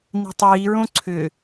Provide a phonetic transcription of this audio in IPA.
n i̤ tˤ iː ɹ õ ǀʰ ʏ

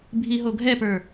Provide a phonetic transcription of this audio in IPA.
bʱ i ɦ o ɡʱ ɛ p ə˞

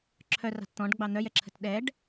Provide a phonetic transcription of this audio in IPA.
ǁʰ œ r ɑ̤ t t̪ ɔ̃ ɖ ɡ͡b ɑ n̪ œ j ɛ ǁʰ ə̤ t ɗ ɛ ɖ

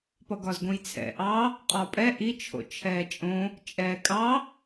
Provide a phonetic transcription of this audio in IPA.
p ʌ ɡ ɒ z ɡ õ j t͡sʰ ɛ̰ ʔ ɑ | qʼ ɒ pʼ ɛ ʔ i t͡ʃʰ o̰ t͡ʃʰ ɛː t͡ʃʼ õ | t͡ʃʼ ɛː kʼ ɑ

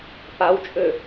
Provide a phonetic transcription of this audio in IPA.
p a w t͡ʃʼ ø

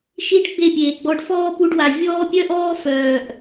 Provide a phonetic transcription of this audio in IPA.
ʃ i˦ ɖ ɡ͡b e˦˨ pʲ eː˨ ɡ͡b ɔ˧ ɖ f ɔː˦ p u˧ ɖ w a˨ vʲ ɔː˦ pʲ œ˦ ʔ ɔː˦ f œː˨ ʔ

